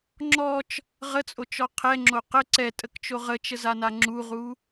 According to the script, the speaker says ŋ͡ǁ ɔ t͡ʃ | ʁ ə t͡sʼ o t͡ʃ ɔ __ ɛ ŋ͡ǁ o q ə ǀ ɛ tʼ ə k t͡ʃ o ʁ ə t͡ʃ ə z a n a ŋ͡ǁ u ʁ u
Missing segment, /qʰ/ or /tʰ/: qʰ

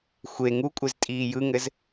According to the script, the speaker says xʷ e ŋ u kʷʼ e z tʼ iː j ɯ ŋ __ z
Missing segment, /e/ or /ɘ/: ɘ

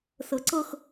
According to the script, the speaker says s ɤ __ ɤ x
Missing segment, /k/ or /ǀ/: ǀ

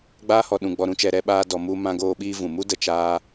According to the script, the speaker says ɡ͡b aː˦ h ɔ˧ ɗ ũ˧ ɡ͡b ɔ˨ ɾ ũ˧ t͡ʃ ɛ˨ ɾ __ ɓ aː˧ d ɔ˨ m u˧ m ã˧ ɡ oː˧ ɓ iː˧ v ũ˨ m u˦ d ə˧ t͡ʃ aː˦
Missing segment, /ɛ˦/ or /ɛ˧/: ɛ˧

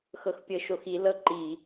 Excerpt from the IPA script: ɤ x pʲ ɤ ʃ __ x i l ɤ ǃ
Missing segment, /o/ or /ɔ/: o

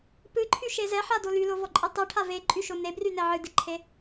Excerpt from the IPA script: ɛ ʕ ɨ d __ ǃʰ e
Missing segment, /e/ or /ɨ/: ɨ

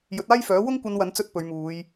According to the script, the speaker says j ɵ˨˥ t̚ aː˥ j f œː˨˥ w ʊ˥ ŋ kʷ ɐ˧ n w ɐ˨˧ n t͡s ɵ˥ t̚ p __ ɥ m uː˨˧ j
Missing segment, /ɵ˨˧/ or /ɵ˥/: ɵ˨˧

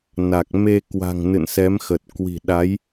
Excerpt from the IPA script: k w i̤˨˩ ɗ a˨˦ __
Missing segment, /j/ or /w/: j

